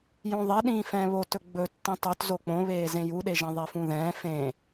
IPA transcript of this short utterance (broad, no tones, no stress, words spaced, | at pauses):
jõðˤeɗĩː fɛ̃ːβotɵ ɡ͡bɵ tːĩtˤɵt zok͡põβeː zẽjuɗeʒɛ̃ ðˤefũðɛ̃ː fẽ